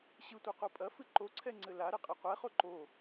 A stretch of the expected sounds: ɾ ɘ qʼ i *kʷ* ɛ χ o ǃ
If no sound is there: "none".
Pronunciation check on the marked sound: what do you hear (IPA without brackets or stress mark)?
qʷ